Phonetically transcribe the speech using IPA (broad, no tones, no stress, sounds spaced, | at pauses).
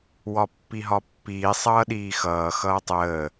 w ɒ pː i ɦ ɒ pː iː sˤ ʌː ɗ iː x ʌː x ʌː tˤ əː